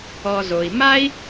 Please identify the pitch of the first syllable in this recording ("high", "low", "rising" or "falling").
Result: low